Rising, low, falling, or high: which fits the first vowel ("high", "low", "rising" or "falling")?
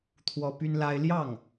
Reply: high